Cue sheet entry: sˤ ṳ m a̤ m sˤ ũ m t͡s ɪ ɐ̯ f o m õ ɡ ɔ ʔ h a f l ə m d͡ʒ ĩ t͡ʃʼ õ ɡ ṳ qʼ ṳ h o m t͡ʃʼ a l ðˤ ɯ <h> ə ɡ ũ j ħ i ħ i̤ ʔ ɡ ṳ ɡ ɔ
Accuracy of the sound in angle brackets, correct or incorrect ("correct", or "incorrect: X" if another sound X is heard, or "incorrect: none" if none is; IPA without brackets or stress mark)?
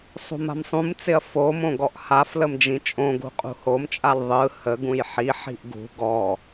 correct